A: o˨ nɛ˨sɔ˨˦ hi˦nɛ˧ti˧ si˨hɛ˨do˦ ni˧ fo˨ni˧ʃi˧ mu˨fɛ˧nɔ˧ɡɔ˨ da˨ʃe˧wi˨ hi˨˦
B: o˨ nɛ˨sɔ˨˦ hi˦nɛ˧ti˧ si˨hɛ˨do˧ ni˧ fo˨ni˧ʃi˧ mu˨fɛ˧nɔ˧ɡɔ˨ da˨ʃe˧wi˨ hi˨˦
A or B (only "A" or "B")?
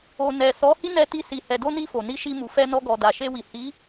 B